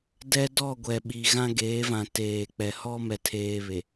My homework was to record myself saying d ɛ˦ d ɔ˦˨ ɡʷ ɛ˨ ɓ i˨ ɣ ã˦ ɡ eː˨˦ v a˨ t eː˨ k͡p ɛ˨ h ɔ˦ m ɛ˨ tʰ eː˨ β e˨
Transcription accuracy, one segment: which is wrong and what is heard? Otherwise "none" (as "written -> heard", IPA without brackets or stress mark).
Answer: a˨ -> ã˨